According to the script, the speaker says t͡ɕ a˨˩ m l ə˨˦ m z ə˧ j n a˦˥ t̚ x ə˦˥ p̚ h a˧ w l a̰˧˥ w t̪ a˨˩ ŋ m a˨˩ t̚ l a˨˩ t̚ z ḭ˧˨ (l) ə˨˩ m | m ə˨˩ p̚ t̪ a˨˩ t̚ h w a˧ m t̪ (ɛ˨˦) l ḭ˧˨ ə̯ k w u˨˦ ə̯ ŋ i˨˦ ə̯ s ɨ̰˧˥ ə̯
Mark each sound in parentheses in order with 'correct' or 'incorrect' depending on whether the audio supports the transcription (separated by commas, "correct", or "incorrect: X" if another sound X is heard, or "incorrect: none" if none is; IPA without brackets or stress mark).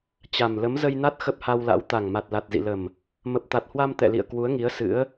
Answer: correct, incorrect: ɛ̰˧˨